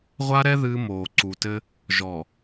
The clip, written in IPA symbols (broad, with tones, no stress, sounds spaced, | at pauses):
ʁʷ a˦ ɾ ɛ˦ ð ɨː˦ m oː˨ ǀ u˨ t ɘ˦ | ʒ ɔ˨